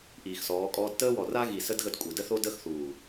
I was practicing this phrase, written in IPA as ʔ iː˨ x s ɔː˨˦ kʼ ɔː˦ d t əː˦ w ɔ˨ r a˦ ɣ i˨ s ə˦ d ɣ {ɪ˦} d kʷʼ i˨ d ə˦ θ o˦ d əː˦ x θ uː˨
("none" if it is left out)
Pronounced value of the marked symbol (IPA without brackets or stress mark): ə˦